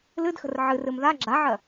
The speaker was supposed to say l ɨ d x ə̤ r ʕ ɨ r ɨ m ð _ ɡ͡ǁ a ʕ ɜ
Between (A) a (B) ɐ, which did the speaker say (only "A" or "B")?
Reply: A